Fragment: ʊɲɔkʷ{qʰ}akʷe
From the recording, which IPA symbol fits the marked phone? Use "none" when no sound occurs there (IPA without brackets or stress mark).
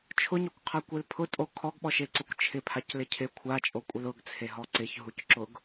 qʰ